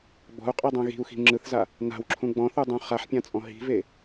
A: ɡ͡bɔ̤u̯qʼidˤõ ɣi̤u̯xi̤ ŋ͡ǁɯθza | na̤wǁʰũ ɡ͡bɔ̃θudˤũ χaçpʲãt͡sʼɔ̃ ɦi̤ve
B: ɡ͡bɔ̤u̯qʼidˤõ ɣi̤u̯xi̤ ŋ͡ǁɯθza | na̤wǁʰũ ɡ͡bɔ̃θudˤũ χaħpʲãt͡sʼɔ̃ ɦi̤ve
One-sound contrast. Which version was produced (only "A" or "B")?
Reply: B